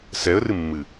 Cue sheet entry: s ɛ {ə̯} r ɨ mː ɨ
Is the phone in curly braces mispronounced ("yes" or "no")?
no